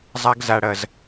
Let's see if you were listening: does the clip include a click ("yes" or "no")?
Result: no